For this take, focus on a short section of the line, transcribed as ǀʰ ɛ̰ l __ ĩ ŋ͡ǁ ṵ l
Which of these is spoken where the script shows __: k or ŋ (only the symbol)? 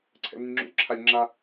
ŋ